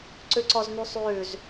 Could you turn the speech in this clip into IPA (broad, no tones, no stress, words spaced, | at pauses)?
ǀʉǀɔznysˤʉːz